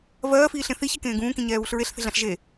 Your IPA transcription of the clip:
v ɜː f iː ɬ ẽ θ i ç ɛ k ẽː ɡ ũː k ĩ ɲ ɛː β u ɬ ɹ e ɬ θ e̤ ɮ ã ɬ ʒ e

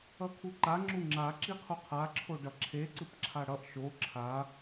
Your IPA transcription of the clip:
ʌ kʰ u ǃ a ŋ͡ǁ u ŋ͡ǁ a ǁ i qʰ u qʰ a ǁʰ o ɖ ʌ ǁʰ e ǀ ɯ p ǁʰ a ɽ ʌ ʔ ʃ o ǁʰ a

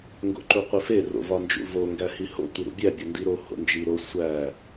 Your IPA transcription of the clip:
ŋ ɡ o̰ ǃ u qʷ i f e r o̰ v ɒ n d͡ʒ ṵ v o ŋ ɡ æ h i h o̰ tʷ i ɾ ṵ bʲ æ bʲ o n d i ɾ o h o̰ n d͡ʒ i ɾ o sʷ æ

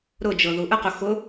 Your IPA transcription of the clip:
ɾ ʊ d͡ʒ ɤ ð u ʔ ə q ʊ x ʊ

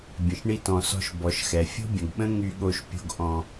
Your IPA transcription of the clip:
bʲ ə̃˨ ʃ ɳ i˧ t ɔ̃˨ s ɔ̤˧ ʃ b ɔ˨ ʃ x ɛ˨ fʲ o̤˦ bʲ ə̃˨ ɡ ɓ ə̃˦ ŋ y˧ ɠ o˧ ʃ pʲ o̤˧ ɡ ʔ ɔ̃˧

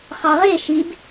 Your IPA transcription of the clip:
χ ɑ ʁ e ʃ i b

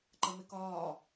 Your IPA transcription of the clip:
ǃ ɐ m e k ɒː

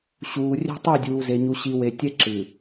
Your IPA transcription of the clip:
ɕ uː˨ rʲ ɛ̤˦ tˤ ʉ˦˨ dʲ uː˨ z e˨ ɲ u˨ ɕ i˨ w e˨ tʲ ɛ˦ ǁ ɨː˨

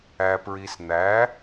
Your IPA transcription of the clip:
æ˧ p ɹ i˧ s n̪ æ˧˥

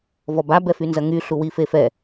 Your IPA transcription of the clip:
v ɔ b a b ɛ f y n z ɐ ŋ y ɬ u w i f e f ɛ

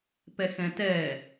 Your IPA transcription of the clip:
p ɛ x ɛ̃ t ɛ

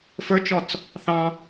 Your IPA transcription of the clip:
f ə˞ t͡ʃ ɔ t͡s | θ ɑ̃

